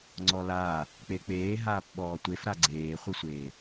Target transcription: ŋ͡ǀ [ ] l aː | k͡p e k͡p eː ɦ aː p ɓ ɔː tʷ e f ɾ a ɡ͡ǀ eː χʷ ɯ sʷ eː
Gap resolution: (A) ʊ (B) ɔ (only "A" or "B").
B